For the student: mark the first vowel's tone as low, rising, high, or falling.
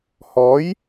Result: rising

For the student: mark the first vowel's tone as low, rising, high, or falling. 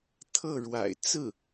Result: falling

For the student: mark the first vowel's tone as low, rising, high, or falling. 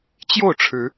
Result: falling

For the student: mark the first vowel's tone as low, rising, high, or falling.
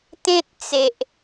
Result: high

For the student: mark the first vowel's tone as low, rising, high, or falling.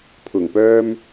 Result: low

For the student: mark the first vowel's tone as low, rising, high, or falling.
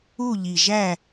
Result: falling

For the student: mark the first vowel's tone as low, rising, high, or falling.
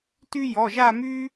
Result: high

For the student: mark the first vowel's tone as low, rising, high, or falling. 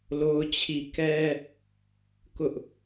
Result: high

